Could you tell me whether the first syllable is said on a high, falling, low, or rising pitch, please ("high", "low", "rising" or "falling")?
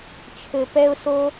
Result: high